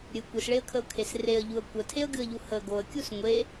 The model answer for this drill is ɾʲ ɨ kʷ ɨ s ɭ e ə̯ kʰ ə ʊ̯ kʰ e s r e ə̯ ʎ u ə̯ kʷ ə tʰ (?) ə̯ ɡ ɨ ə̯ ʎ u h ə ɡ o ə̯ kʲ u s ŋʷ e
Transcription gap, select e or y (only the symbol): e